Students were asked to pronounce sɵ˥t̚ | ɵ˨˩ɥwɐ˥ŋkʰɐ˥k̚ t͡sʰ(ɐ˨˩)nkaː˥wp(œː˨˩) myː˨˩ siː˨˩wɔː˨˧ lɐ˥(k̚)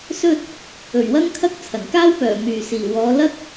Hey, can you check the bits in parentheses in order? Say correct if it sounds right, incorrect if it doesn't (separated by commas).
correct, correct, correct